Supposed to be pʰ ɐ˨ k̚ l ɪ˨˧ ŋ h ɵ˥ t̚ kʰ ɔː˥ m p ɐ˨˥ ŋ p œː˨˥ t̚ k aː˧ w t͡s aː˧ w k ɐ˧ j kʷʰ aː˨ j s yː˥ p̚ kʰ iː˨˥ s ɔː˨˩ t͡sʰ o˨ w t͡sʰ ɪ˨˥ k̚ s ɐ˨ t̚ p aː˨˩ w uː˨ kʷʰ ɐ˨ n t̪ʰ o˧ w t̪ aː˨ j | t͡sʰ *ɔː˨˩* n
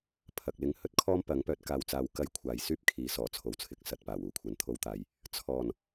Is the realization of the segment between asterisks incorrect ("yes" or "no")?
no